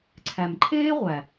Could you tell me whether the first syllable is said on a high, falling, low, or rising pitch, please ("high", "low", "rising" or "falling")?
low